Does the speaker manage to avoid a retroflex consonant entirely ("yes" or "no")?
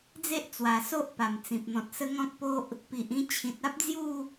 yes